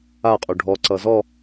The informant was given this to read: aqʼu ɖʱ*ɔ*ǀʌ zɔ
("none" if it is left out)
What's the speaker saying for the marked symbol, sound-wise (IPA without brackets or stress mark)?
ɔ